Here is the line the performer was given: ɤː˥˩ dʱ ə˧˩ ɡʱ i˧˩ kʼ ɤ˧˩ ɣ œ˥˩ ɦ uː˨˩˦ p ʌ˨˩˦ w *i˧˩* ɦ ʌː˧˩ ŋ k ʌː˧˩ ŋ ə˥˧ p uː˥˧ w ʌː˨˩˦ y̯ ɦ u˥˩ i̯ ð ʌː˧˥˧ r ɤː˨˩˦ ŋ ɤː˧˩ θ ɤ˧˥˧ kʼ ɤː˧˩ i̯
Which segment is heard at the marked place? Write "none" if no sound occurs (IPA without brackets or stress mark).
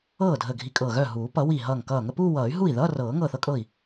i˧˩